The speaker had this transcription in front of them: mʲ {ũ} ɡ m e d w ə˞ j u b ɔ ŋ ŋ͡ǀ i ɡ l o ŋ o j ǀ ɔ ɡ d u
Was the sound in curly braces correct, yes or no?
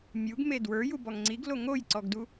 no